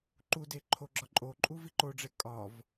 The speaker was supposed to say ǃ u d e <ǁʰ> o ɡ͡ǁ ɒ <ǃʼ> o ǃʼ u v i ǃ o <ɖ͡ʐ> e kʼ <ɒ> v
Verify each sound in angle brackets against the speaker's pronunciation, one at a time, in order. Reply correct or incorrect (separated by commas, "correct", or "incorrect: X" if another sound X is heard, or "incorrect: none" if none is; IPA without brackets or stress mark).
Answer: incorrect: ǃʰ, correct, correct, correct